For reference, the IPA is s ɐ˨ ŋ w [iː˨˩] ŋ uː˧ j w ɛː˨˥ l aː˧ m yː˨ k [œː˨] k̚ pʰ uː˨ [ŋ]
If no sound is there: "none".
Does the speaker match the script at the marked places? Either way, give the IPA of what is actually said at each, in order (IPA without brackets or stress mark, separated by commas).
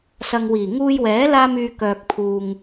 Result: iː˨˩, œː˨, ŋ